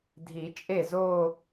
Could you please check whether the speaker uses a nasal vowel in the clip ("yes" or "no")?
no